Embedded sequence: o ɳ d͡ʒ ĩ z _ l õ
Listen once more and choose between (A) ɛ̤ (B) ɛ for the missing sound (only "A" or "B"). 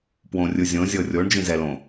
B